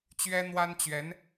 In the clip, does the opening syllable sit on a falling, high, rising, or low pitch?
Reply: high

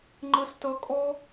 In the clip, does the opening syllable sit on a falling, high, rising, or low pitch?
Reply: high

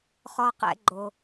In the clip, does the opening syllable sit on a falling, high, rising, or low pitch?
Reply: high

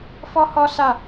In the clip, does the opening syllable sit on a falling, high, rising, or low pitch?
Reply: high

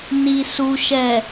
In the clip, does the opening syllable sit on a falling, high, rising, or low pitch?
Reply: low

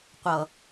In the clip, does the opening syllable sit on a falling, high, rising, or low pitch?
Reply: low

